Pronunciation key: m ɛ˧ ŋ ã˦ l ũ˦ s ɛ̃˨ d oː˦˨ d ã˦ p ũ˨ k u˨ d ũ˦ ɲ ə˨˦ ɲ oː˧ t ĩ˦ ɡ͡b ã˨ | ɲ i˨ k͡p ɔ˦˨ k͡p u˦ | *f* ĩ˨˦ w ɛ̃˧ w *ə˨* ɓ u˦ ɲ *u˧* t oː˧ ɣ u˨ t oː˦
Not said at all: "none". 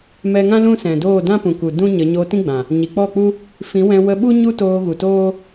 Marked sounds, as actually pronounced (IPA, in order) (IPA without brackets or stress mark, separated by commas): f, ə˧, u˦